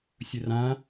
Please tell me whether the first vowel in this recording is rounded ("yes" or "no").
yes